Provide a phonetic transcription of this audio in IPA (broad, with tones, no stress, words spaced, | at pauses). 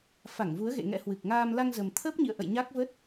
fa˧˩ŋvu˨˦ə̯ɣḛ˧˨ ŋɛ̰˧˥hwɨ˨˩k̚ŋaː˧m la˧ŋzə˨˩m t̪ʰəː˦˥p̚ɲḭ˧˨ə̯ʔə̰˧˨j ɲa˦˥k̚və˦˥t̚